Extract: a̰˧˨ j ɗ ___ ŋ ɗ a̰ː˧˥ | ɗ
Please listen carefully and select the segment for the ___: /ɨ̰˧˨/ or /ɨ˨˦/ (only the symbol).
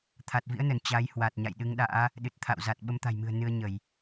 ɨ˨˦